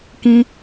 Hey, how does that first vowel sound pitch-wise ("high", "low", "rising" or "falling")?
high